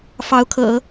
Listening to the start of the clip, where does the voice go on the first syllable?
rising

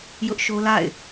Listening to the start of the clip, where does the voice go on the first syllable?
high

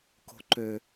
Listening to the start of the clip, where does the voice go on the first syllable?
high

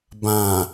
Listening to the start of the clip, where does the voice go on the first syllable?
low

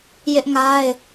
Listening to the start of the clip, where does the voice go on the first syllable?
high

